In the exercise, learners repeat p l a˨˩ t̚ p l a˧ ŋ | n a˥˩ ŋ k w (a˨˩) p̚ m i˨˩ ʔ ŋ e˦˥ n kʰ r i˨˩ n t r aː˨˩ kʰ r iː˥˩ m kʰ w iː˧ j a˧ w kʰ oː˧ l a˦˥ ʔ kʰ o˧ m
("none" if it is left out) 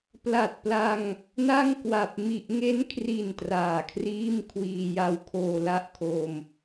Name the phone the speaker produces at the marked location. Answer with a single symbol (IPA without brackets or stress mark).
a˨˩